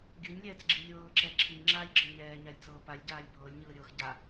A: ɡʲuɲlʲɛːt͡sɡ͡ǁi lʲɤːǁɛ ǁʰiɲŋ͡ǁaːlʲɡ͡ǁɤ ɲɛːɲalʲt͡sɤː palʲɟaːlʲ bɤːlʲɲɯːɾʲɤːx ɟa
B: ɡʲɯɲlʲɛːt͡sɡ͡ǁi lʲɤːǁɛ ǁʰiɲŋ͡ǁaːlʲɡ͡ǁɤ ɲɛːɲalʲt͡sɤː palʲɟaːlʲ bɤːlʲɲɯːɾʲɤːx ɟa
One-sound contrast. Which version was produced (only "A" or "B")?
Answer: B